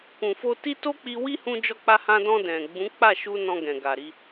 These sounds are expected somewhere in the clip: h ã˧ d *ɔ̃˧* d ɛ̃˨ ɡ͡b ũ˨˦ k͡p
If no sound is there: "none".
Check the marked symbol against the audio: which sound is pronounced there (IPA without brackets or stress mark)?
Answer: ɔ̃˧